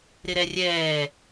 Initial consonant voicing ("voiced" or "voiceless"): voiced